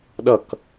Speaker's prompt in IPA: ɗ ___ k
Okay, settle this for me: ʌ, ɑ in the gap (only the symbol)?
ʌ